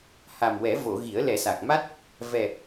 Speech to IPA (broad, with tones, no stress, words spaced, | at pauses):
ha˨˩mwɛ˨˩˦ vo˨˩˨ ɣi˨˩˦ə̯lɛ˨˩˦sa˨˩k̚ ma˦˥t̚ | vɛ˨˩